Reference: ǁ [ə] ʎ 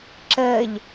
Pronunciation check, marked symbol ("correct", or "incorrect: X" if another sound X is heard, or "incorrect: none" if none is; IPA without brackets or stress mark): incorrect: əː